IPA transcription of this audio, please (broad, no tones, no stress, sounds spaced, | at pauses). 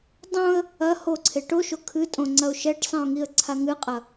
dˤ õ ə̯ | ɐ h o ǀʰ e ʈ o ʃ o kʰ ɨ tʼ õ ŋ͡ǀ ɐ ʊ̯ ʃ ɛ ʈ sˤ ĩ ʊ̯ ŋ i ə̯ ǀʰ a ŋ ɨ qʼ ɐ